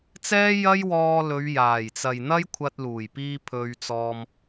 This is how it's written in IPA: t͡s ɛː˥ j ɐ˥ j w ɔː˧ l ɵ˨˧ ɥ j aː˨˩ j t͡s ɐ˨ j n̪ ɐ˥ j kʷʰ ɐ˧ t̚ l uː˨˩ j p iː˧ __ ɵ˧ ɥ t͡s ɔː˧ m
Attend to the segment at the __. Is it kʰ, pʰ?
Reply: pʰ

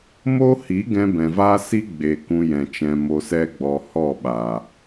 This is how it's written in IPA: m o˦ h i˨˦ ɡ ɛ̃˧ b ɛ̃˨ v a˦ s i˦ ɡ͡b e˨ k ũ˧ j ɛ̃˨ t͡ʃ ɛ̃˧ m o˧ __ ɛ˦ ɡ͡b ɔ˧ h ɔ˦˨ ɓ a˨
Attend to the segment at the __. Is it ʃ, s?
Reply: s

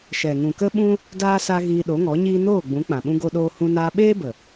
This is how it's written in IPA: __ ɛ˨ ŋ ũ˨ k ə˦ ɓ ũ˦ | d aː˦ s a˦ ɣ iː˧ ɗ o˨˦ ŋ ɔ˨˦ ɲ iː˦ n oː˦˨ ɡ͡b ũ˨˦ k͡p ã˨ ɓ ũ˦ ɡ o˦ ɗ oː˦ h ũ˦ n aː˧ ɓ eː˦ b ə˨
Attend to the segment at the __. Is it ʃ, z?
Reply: ʃ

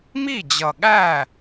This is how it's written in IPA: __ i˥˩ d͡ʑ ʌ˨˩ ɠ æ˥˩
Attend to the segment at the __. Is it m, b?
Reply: m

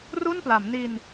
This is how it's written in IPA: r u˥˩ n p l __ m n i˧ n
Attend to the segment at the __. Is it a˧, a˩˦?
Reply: a˩˦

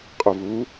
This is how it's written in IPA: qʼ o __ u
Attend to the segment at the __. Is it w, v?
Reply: v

